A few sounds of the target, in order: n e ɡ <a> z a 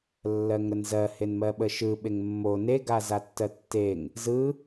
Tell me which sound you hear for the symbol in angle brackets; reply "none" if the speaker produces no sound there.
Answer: a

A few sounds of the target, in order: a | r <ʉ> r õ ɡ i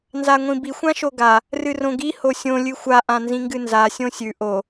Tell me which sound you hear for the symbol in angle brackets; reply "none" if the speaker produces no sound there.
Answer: ɨ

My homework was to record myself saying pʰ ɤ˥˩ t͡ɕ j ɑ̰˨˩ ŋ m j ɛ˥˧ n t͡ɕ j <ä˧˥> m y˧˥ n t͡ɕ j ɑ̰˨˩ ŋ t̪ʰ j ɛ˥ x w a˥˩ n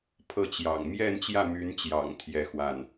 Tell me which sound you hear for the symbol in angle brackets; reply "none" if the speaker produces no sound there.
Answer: ä˥˩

